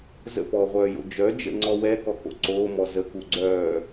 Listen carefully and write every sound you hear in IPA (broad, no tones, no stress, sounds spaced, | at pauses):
z ə̰ p ɔː ʁʷ œː j o̰ d͡ʒ œ d͡ʒ ə̰ ŋ͡ǀ ɔ w ɛ k ɔ k o̰ ǀ oː m ɔ z ə k u ɡ͡ǀ œː